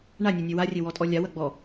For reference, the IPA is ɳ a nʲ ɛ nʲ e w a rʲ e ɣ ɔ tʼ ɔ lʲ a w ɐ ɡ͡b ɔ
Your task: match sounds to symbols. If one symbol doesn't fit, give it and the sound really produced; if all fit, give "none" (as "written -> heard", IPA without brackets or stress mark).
ɣ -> w